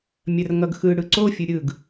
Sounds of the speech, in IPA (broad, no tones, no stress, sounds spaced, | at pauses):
mʲ ɐ r ŋ ʌ ɡ x ɯ ɽ ɯ ǀ o fʲ ɯ ɾʲ ɯ ɡ